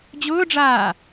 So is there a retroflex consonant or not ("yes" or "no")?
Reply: yes